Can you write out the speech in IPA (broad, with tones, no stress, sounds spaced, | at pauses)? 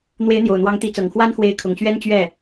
n̪ w e˧˥ ɪ̯ n̪ j o˨˩ ʊ̯ n̪ w ɑ˧˥ ŋ t̪ i˧˥ t͡s ɤ˨˩ ŋ x w a˥ n x w e˧˥ ɪ̯ kʰ ʊ˨˩ ŋ ɕ ɥ ɛ˥ n t͡ɕ ɥ ɛ˥˩